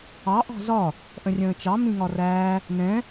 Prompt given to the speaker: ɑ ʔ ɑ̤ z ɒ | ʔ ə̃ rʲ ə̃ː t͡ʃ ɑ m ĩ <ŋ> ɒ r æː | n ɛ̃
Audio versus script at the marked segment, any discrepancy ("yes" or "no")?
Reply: no